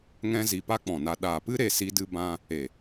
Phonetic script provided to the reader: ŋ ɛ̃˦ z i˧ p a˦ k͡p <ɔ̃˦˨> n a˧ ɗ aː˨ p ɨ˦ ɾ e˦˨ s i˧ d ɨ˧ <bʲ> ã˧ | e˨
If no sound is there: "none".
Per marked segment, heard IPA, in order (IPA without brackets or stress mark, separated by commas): ɔ̃˨, b